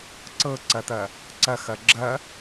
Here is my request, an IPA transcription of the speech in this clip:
ǀ ɤ ǀ ɐ t̪ ɐ | ǀ ɐ x ɐ ɡ͡ǁ ɐ

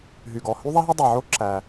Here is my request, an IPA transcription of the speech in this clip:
ɦ y˩ ɡ ɔ˩ h y˥ ðˤ ɛ˥ ɦ ɵ˥ dˤ e˩ ʕ o˥ ǁ æ˩

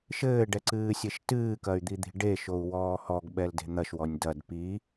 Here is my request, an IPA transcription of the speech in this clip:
ʃ ɘː ɖ ɛ ǀ ɨː sʲ e ʃ t ɨː k ɐ y̯ d̪ i d̪ i̤ ɖ e ʃ o u̯ w ɔː h ɔ ɡ ɓ ɛ l d e̤ n̪ ɐ ʃ w ɔ nʲ d ɐ d p i

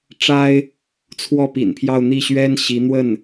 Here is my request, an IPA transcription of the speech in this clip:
ʈ͡ʂ a˥ ɪ̯ | t͡sʰ w ɔ˥˩ p ḭ˨˩ n pʰ j ɑ˥˧ ʊ̯ n̪ i˥˩ ɕ ɥ ɛ˥ n ɕ i˧˥ n̪ w ə˥˩ n

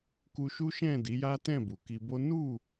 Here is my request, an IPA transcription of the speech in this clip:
k u˧ ʃ u˦ ʃ ɛ̃˦˨ d i˨˦ j a˦ t ɛ̃˦˨ b u˨ k i˧ b o˦ n u˦˨

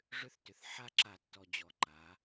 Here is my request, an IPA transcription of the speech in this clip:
ʐ ʏ˦ θ t ʏ˨ θ ħ a˦ ǁ a˨ tː ɔ˨ d͡ʑ ɔ˨ ǃ a˨˦

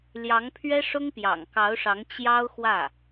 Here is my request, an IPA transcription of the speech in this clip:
l j ɑ˧˥ ŋ pʰ ɥ ɛ˥ ʂ ʊ˥ ŋ p j ɑ̰˨˩ ŋ k ɑ˧˥ ʊ̯ ʂ ɑ˧˥ ŋ t͡ɕ j ɑ˥ ʊ̯ x w ä˥˩

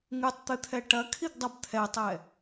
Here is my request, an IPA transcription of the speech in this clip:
ŋ ɨ tˤ t̪ ɨ t̪ʰ ɛ ʈ ɐ kʰ i ɡ dˤ ɐ b t̪ʰ ɛ tˤ ɛ

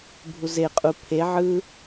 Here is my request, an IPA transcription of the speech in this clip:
bʱ u z e qʼ u pʰ e ʕ ɯ

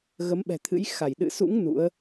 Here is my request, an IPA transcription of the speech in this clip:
ɣ ə˨˦ m ɓ ɛ̤˨˩ t̪ʰ ɨ̰˧˥ j x a˧˩ j ɗ ɨ̰˧˨ s ṵ˧˥ ŋ n ṵ˧˥ ə̯

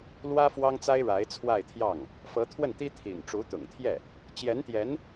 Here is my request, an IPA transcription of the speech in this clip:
l w ä˥ f w ɑ˥ ŋ t͡s a˥ ɪ̯ ɻ a˧˥ ɪ̯ t͡sʰ w a˥˧ ɪ̯ t̪ʰ j ɑ˥˩ ŋ | f ɤ˧˥ t̪ʰ w ə˥˩ n t̪ i˥ t̪ʰ ḭ˨˩ n ʈ͡ʂ u˧˥ t̪ ʊ̰˨˩ ŋ t̪ʰ j ɛ˥˩ | t͡ɕ j ɛ˧˥ n t̪ j ɛ˧˥ n

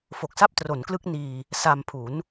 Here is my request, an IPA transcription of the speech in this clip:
f o˨˩ k̚ s a˥˩ p̚ t r o˩˦ n k l ɯ˦˥ k̚ n iː˧ | s a˧ m pʰ u˩˦ n

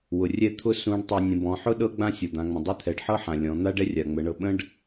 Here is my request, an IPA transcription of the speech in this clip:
w ʊ˩ rʲ ɛ˥ t̪ʰ ʊ˥ s ũ˧˥ ɖ tˤ e˧ nʲ ə̃˩˧ b ɔ̃˩˧ ħ ʊ˥ ɗ ɤ˥ ɡ͡b ã˥ sʲ ɤ˩ d̪ ã˩˧ ŋ͡m ə̃˩ dˤ ɛ˥ t̪ʰ ɛ˩˧ ɖ ħ ɤ˥ ħ ã˩ lʲ ɔ̃˩˧ n̪ a˥ ɖ ɛ˥ rʲ a˩ ŋ͡m ə˩˧ ɳ ɤ˧ ɓ ə̃˥ ɖ

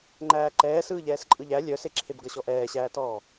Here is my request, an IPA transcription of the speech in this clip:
ŋ͡ǃ æː ǃ ɛː s ɯː ʎ ɛː s ǃʼ ɯ ʎ æ lʲ œ s e ǁʰ e b ɡ ʌ ɕ ɔ ʔ ɛː ɕ æː t ɔː

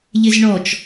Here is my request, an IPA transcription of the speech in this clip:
ʎ ɪ z ɳ ɔ t͡ʃ

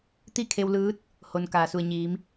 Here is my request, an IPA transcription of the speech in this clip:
t̪ i˥˨ kʰ e˧ w l ɯː˧˥ t̚ | h o˩ n k aː˩ s u˩ ə̯ ɲ iː˩˧ m

